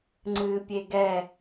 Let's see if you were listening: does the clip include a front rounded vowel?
no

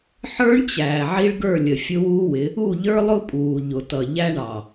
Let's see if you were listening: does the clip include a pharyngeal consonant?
yes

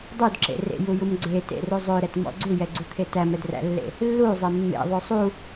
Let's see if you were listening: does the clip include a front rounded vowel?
yes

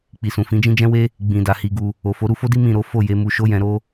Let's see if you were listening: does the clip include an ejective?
no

